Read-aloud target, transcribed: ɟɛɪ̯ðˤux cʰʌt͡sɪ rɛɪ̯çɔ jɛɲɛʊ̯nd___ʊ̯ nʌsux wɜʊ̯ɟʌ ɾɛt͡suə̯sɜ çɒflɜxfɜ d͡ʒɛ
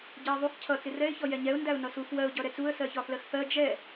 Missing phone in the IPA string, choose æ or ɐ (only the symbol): æ